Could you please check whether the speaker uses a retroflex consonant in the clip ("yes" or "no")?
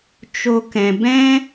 no